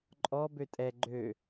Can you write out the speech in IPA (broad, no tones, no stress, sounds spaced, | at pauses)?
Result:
ǃʼ ɔ b ø tʼ ɛ ɡ͡ǃ ø